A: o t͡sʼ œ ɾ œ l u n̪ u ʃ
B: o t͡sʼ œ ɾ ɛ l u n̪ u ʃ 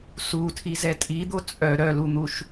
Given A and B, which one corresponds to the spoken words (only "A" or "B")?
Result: A